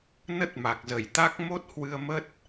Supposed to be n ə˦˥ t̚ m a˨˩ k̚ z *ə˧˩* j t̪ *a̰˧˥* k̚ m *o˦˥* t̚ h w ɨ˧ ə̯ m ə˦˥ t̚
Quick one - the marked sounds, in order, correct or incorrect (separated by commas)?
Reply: correct, incorrect, correct